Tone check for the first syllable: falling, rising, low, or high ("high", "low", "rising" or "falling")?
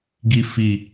low